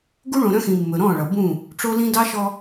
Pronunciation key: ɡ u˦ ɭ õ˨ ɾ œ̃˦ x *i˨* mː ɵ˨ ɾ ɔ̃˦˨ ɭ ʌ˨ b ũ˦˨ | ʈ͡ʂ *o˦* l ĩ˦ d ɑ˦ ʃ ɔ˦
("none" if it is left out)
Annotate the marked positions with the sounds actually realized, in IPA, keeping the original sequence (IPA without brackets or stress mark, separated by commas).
ĩ˨, o˦